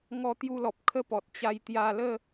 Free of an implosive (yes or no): yes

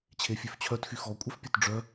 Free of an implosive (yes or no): yes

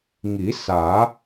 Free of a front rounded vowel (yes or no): yes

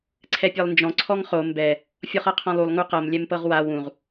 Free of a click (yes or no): no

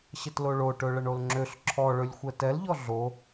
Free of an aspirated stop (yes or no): no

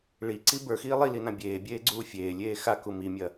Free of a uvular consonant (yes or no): yes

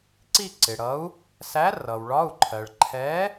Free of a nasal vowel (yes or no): yes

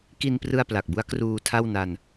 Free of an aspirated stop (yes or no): no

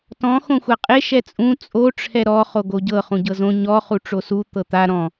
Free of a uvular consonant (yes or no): no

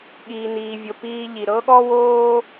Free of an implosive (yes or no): no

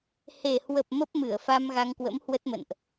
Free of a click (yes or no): yes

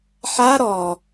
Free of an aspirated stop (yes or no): yes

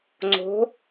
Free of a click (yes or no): no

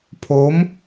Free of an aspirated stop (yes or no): no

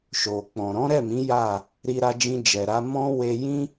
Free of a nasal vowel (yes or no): no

